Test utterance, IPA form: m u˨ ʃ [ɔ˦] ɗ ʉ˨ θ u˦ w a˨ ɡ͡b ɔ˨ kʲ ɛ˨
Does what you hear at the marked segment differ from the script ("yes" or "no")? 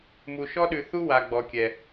no